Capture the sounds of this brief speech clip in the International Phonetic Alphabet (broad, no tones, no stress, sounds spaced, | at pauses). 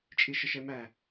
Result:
t͡ʃʼ i ʃ ə ʃ ɛ m æ